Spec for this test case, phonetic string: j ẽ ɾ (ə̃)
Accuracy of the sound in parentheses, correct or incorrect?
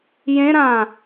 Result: incorrect